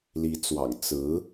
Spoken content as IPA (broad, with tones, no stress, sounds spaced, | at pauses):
l i˧˥ t͡s w ɑ̰˨˩ ŋ t͡s ɹ̩˧˥